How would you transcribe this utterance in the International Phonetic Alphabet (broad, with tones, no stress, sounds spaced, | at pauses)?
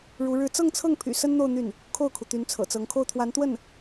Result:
ɻ u˧˥ ɻ ɻ̩˥˧ t͡s ɤ˥˧ ŋ t͡sʰ ɤ˥˩ ŋ pʰ y̰˨˩ s ə˥ n n̪ o˥˧ ʊ̯ n̪ y˥˩ n | kʰ o˥˩ ʊ̯ kʰ u˩ t̪ y˧˥ n t͡sʰ ɤ̰˨˩ t͡s ɤ˧˥ ŋ kʰ o˥˩ ʊ̯ t̪ʰ w a˧˥ n t̪ w ə˥˩ n